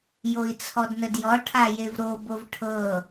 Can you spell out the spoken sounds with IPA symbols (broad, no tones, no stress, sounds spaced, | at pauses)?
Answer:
j o i̯ t͡sʰ ɔ d n ə d j ɔ ʈʰ a j e v ɾ o b o v ʈʰ ɤ